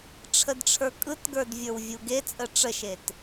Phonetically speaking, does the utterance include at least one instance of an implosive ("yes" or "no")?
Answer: no